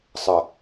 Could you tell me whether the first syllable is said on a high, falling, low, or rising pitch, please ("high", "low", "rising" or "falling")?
low